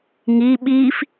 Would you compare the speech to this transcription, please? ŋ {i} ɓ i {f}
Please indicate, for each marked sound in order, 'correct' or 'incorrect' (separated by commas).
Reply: correct, correct